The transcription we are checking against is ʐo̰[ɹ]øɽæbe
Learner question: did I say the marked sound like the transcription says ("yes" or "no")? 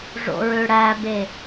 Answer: yes